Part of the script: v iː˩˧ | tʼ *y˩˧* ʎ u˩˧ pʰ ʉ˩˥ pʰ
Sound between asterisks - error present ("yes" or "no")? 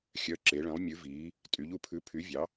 no